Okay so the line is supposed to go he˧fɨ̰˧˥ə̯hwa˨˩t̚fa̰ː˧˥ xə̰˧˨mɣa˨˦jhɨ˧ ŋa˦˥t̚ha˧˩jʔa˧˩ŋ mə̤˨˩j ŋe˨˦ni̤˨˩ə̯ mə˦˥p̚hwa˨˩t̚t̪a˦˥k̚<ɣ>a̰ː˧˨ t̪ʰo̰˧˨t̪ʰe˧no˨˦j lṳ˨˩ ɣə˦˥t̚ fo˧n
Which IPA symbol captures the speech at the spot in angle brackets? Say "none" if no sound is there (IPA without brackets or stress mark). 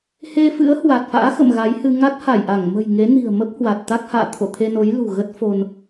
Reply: h